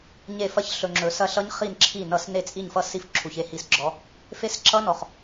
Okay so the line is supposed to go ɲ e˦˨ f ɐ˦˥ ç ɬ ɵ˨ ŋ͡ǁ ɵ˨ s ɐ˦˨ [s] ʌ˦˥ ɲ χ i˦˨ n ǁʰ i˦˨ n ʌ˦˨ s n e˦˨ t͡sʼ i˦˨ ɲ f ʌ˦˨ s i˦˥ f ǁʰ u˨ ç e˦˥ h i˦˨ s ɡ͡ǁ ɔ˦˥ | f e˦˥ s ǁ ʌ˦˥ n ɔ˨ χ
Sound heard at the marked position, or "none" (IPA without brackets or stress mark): ɬ